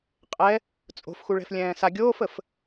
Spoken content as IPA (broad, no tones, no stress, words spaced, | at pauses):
qʼɛ | t͡sʼo̤fxuɭɛ̤f lʲɛ̃ːsa ɡʲoːfəf